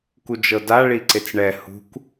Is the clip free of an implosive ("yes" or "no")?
yes